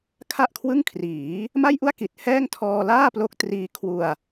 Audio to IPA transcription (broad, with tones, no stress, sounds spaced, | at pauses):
kʰ a˥˩ ʔ kʰ w ɯ˥˩ ŋ kʰ r iː˩˦ | m a˥˩ j ʔ u˥˩ a̯ k i˨˩ t̚ h ɛː˥˩ ŋ tʰ ɔː˧ l aː˥˩ p l o˦˥ k̚ t r iː˦˥ kʰ w u˧ a̯